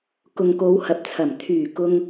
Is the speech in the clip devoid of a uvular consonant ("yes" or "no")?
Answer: yes